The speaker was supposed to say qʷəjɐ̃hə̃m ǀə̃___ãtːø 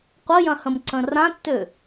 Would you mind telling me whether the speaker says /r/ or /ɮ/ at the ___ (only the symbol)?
r